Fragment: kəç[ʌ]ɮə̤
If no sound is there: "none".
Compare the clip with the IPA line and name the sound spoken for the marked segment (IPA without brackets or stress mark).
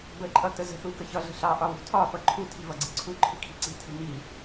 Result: ʌ